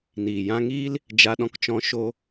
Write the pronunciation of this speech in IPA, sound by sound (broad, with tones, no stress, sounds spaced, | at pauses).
n iː˨ j ã˧ ŋ iː˦ l | d͡ʒ a˧ ɗ ɔ̃˧ k t͡ʃ ɔ̃˧ ʃ o˧